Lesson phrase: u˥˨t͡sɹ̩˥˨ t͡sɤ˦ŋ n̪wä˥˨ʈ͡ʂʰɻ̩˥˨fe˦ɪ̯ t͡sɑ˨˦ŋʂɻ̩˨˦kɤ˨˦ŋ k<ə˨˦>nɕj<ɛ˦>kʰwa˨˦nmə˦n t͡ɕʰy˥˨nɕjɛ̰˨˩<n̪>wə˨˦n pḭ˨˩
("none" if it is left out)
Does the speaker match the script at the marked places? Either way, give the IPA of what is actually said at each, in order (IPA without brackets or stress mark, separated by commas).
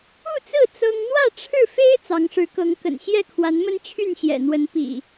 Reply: ə̰˨˩, ɛ˥˨, n̪